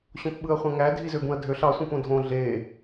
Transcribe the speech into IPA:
ɕõpɓɯɐ̯χʷæ̃ŋæ dʱizøbũɐ̯dʱøɬ ɑ sʷĩpõdʱõ ɮe

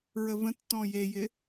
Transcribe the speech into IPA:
ɹəvə̃tːɔ̃ jejɪ

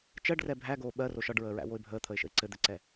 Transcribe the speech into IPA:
t͡ʃɜɖrɛ bʱæɡoː ɓɜro ʃɒɖɹəːɹæ̰woɪ̯ bʱəːt̪ʰəɪ̯ʃə̰ɪ̯ ǀɘd̪ɘǀɛ

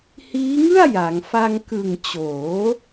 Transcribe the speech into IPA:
hiː˦˥ŋɯ˥˩a̯ ja˩˦ŋ fa˧ŋkɯ˨˩ŋ t͡ɕoː˩˦

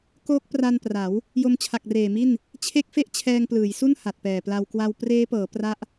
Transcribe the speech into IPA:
koː˦˥k̚pra˧npra˩˦w | jo˧mt͡ɕʰa˨˩k̚reː˨˩mi˥˩n | t͡ɕʰe˦˥k̚fe˦˥ʔ t͡ɕʰɛː˧ŋplɯː˩˦jsu˥˩n ha˨˩t̚pɛː˨˩pla˧w kwa˧w preː˦˥pɤː˩˦ pra˦˥ʔ

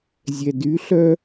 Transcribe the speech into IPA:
zʲɛdyɬœ

